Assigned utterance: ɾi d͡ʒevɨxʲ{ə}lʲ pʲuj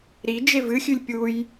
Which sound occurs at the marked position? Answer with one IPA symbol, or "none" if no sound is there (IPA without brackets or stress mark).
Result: ʉ